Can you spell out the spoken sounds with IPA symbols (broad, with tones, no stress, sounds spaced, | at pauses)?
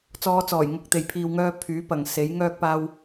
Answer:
t͡s ɔː˨˧ t͡s ɔː˨˩ j ŋ ʊ˧ k̚ t̪ e˨ j pʰ iː˧ w ŋ œː˧ pʰ yː˨˥ p ɐ˨ ŋ s e˨˥ j ŋ œː˥ k̚ p aː˥ w